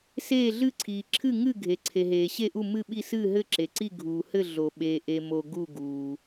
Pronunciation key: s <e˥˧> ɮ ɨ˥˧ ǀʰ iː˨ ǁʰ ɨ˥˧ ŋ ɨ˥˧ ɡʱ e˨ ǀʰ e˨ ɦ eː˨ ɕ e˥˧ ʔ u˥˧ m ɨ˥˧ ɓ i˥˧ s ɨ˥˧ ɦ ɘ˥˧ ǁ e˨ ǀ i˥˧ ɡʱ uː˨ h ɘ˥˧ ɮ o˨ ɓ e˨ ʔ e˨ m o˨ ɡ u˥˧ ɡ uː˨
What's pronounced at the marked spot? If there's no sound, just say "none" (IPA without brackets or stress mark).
eː˥˧